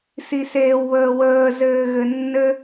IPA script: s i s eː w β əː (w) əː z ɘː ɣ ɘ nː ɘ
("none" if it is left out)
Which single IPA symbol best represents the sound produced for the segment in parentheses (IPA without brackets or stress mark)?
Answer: w